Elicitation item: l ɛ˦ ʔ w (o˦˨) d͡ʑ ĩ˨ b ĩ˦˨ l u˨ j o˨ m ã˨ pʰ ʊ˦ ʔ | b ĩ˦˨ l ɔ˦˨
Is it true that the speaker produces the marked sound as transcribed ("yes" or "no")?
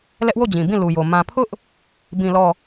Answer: yes